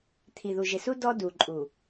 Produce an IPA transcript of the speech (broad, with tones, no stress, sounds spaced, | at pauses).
t̪ʰ i˨ ð u˨ ʒ ɪ˨ s u˦ d ɔ˦ d u˨ ǃʼ u˨